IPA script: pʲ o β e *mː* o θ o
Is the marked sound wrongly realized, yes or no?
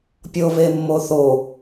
no